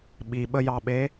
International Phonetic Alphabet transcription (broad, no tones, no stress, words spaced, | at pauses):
ɓiɓəjɑɓe